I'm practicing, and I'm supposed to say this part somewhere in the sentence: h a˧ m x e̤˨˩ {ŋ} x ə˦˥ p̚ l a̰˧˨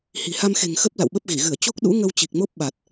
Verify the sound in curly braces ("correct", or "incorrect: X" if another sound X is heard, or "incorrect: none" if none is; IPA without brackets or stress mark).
correct